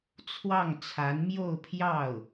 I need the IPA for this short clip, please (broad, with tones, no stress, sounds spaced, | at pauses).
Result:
t͡sʰ w ɑ˥˩ ŋ t͡sʰ a˧˥ n m j o˥˧ ʊ̯ pʰ j ɑ˥˩ ʊ̯